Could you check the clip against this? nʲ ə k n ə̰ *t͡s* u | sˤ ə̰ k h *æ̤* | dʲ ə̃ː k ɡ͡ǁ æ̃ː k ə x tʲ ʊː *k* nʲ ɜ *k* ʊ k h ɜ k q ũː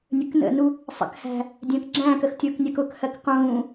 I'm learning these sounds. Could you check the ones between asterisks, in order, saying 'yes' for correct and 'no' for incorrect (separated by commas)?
no, yes, yes, yes